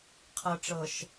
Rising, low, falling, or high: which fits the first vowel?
low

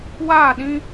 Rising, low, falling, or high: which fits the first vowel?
falling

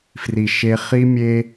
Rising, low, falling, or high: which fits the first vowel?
low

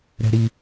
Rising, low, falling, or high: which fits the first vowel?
high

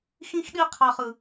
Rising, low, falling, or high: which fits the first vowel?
high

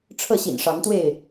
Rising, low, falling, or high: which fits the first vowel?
falling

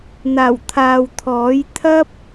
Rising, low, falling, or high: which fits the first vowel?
low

